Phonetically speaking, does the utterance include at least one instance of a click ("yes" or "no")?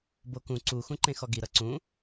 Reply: yes